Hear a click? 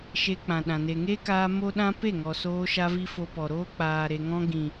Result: no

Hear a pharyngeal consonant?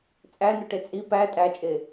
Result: no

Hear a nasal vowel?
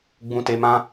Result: yes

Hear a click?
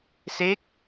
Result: no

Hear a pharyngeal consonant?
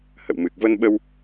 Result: no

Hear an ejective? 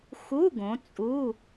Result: yes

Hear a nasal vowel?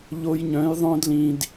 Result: yes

